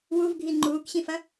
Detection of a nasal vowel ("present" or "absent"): present